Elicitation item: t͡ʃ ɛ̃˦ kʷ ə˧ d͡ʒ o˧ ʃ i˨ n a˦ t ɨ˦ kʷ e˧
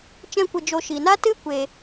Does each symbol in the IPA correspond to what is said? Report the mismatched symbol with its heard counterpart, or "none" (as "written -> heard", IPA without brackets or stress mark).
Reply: none